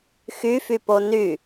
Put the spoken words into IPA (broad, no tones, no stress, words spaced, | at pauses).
xyfypo ny